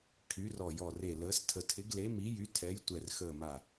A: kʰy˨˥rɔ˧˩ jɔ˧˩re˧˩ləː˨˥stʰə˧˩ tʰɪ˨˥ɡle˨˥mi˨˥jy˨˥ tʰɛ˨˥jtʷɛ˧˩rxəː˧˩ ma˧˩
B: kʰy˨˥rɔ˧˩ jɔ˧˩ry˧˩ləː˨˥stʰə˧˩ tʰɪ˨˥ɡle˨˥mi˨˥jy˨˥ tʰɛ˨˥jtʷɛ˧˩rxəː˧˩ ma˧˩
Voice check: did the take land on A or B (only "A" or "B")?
A